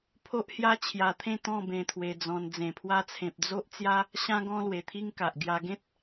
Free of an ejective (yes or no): yes